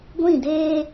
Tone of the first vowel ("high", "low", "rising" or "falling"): falling